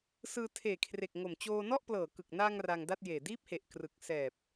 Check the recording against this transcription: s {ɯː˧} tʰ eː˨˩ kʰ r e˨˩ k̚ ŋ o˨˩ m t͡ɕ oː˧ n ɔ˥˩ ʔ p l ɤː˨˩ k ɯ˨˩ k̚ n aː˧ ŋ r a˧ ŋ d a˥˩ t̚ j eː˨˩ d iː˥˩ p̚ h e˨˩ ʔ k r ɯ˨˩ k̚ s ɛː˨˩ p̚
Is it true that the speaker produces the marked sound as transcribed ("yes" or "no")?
yes